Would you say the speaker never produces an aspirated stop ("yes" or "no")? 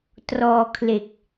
no